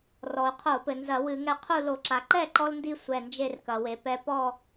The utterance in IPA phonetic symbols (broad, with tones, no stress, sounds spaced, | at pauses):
r ɔ˩ u̯ qʰ o˧˩˧ p ɘ˩ n z ɐ˧˩˧ w ɨ˧˩˧ ŋ ɛ˧ qʰ u˥˨ l o˧˩˧ ǁ a˩ ǃ ɛ˥˨ ǃ ɔ˧ l n d i˧ sʷ ɛ˧˩ n d͡ʒ e˥˨ r k ɐ˩ w e˩ p ɛ˧ p ɔ˥˨